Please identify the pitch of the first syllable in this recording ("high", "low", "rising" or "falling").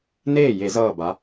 falling